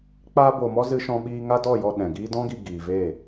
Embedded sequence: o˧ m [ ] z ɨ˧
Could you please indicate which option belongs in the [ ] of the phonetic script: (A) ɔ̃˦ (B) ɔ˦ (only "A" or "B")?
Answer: B